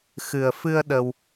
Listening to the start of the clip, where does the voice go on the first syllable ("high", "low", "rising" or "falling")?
low